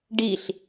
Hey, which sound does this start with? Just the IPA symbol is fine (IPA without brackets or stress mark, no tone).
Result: ɖ